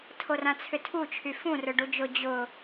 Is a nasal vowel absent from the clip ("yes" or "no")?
no